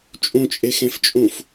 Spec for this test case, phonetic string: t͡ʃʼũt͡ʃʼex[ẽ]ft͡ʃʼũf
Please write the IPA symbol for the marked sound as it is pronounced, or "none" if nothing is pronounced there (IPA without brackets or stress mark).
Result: ẽ